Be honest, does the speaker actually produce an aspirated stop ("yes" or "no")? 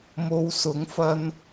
no